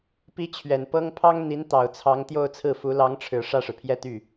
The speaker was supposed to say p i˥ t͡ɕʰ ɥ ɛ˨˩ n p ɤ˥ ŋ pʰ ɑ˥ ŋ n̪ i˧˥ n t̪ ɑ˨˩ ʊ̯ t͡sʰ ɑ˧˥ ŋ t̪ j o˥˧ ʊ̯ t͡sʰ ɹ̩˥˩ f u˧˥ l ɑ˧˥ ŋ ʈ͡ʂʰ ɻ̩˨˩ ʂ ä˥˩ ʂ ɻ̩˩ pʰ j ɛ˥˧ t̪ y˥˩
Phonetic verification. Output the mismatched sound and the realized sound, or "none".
none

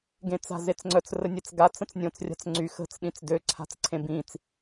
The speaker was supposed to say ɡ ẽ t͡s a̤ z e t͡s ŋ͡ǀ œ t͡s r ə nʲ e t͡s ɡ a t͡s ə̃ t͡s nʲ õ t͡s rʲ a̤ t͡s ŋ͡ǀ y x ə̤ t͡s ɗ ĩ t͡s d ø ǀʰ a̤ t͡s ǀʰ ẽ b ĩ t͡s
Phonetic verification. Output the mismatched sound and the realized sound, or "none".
none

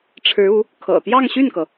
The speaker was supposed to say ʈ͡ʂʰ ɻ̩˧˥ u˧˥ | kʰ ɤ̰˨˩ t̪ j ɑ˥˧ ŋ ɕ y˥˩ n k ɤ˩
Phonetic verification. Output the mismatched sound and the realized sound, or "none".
none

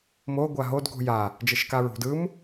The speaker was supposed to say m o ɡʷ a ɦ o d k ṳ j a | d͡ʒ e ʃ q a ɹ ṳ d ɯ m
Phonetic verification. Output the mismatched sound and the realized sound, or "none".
q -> k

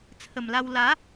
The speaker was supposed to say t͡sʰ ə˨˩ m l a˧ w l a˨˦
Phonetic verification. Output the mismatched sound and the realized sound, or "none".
none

